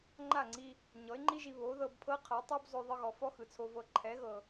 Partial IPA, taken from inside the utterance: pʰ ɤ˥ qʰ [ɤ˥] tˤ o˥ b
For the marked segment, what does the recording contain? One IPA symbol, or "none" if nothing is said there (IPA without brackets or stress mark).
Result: ɤ˩˥